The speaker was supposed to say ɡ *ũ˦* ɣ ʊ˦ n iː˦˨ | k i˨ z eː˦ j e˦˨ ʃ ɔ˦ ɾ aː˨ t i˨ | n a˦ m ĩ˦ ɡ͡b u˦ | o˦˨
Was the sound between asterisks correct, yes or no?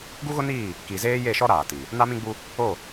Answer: no